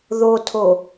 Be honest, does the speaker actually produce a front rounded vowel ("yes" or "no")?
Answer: no